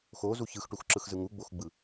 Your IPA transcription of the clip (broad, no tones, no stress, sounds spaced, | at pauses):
x o z u ç ɯ x ʈ u x ǁ ɯ x z ɯ ŋ u ɡ͡b o x ɡ͡b ɯ